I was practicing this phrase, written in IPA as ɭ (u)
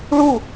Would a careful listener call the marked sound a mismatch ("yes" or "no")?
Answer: no